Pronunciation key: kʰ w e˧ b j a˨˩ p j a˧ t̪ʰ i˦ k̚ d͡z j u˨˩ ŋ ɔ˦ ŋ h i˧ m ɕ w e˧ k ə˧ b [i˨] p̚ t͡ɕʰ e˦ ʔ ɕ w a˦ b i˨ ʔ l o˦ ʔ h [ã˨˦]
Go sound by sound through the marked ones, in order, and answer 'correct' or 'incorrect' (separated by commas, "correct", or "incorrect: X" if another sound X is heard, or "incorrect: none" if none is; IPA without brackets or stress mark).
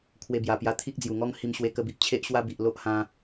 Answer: correct, incorrect: ã˧